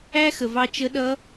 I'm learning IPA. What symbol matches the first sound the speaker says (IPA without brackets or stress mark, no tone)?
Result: æ